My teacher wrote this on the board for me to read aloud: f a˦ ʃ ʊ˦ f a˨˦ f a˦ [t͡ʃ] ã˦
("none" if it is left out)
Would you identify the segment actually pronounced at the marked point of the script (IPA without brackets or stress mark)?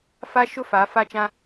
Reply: t͡ʃ